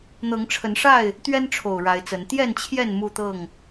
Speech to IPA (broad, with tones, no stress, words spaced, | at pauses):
n̪ɤ˨˦ŋʈ͡ʂʰə˨˦nʂa˥˨ɪ̯ | t̪ɥɛ˦nʈ͡ʂʰo˨˩ʊ̯ ɻa˨˦ɪ̯t͡sə˨˦n t̪jɛ˥˨nt͡ɕʰjɛ˥˨n mu˥˨t̪ɤ˥˨ŋ